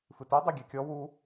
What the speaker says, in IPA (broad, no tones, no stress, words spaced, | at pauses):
fɨtu dˤeɡʲɛkʲɔ wu